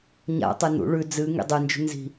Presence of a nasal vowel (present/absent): absent